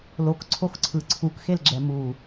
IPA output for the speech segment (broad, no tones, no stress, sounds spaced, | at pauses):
l o k ǀʰ o x ǀʰ ɯ ǀʰ u k x e l ɡ͡ǁ ɛ m u